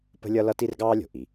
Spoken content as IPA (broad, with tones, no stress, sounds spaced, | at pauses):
p ə̤˥ lʲ ʌ˥ l ʌ˥ t i˥ r ɡ ɑː˥ lʲ o̤˩ ʔ i˩